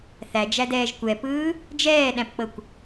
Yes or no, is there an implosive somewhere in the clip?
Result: yes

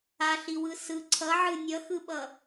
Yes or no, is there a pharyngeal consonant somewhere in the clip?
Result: yes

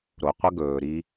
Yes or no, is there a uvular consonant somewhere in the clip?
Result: yes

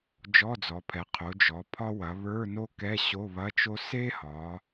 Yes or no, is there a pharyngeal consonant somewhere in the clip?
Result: no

